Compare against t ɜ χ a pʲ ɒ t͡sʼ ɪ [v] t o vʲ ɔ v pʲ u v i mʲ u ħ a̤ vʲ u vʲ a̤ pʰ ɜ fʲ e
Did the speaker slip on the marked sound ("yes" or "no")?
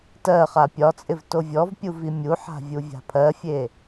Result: no